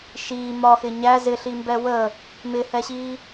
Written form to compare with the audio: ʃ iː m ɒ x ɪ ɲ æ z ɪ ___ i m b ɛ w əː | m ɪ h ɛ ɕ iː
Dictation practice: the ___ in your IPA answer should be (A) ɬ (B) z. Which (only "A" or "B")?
A